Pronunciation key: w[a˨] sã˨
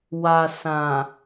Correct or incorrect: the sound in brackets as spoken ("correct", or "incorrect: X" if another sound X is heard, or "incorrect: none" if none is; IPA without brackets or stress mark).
correct